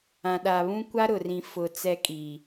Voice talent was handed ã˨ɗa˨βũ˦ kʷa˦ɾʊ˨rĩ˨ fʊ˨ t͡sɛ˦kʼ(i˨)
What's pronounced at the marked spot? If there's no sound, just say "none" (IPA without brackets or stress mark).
i˨